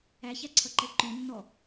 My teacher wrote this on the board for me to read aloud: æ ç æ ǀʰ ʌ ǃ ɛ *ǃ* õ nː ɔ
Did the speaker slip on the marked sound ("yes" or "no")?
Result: no